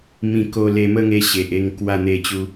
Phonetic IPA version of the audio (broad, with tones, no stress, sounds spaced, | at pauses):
m ĩ˧ k o˧ l e˧ m ə˥˧ ŋ e˧ ɕ e˨ ʔ e˧ ŋ k w a˥˧ n̪ e˥˧ t͡ɕ u˦